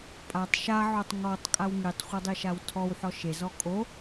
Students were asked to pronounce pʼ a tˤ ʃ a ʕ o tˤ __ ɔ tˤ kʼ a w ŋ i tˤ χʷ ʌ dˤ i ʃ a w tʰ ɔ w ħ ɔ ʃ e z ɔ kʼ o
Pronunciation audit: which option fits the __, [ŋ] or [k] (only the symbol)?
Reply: ŋ